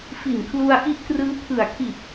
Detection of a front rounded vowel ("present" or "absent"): absent